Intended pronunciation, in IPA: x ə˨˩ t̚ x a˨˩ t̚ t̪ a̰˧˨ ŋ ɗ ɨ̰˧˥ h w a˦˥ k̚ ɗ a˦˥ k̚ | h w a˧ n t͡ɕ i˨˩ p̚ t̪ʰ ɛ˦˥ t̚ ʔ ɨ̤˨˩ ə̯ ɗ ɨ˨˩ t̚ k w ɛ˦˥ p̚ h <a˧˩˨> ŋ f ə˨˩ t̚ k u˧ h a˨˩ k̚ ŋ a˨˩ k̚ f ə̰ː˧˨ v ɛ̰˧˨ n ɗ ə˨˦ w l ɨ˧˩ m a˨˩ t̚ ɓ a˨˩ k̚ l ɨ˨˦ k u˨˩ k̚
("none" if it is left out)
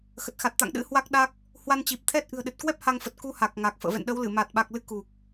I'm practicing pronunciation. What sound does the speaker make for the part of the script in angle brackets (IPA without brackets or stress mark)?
a˧